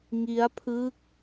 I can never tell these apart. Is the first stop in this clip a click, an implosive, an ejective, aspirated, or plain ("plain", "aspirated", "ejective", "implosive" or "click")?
aspirated